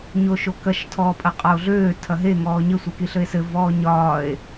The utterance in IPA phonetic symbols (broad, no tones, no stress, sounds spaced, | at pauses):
ɲ o ʃ o k ɐ ʃ tʰ ɔː pʼ ɐ qʼ ɒ o̯ ɮ øː tʰ ɐ ɦ e ŋ ɔː ɲ ɘ sʷ e k i ɬ ɘ e̯ s ɘ v ɔː ɲ ɒː e̯